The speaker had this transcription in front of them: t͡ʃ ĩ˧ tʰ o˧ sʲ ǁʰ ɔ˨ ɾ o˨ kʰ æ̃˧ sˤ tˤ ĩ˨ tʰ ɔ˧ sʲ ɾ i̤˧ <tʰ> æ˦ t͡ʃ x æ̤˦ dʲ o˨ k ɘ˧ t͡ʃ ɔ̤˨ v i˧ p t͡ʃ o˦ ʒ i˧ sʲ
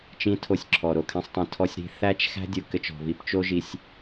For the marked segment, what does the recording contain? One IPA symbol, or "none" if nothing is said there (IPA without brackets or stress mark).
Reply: θ